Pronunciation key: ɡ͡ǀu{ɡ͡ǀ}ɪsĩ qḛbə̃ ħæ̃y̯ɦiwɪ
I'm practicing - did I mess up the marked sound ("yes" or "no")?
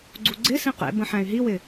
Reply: no